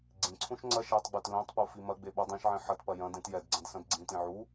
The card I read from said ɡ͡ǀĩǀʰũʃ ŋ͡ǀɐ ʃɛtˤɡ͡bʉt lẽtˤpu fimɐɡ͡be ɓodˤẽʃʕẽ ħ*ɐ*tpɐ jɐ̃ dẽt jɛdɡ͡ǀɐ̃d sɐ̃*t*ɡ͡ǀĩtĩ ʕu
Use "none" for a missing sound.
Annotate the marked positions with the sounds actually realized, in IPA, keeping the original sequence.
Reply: ɐ, d

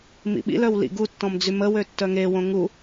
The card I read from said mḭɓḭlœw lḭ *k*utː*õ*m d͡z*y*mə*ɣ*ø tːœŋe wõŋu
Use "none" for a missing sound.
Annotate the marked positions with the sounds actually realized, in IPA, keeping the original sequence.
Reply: ɡ, ɔ̃, y, w

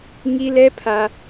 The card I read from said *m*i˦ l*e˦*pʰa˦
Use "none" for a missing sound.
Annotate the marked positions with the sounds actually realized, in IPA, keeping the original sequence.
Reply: ŋ, ɛ˦

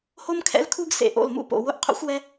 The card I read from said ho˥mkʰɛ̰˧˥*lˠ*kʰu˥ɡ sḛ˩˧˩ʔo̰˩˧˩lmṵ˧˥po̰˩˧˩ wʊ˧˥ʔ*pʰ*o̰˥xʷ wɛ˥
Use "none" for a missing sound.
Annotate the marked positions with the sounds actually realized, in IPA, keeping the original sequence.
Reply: l, qʰ

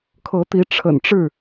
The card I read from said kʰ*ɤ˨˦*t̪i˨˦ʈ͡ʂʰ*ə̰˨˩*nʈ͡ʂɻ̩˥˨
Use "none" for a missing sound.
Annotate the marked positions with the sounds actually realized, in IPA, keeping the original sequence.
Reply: ɤ˨˦, ə̰˨˩

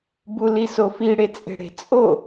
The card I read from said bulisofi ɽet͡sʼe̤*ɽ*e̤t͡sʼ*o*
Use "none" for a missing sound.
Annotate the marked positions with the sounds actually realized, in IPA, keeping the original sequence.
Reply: ɽ, o

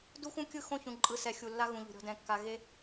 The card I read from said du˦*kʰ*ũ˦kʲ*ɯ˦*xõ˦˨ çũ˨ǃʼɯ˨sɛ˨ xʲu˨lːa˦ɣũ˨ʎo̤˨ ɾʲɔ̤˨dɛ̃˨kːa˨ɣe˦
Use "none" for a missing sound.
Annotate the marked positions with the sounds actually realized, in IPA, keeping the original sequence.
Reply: x, ɯ˦

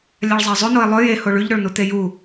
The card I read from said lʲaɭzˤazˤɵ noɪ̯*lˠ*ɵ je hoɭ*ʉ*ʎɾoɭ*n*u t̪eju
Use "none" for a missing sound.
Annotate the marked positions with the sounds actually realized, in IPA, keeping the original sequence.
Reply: lˠ, ʉ, n

